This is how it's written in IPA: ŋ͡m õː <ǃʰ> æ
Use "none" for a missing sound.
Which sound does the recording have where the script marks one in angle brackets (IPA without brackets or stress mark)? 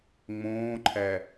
ǃʰ